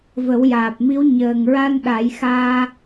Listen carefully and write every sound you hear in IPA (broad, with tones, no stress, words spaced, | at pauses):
və˨˩˦wjaː˨˩p̚mi˧˥w ɲəː˨˩ŋɹa˧n ɗa˨˩˦jxaː˧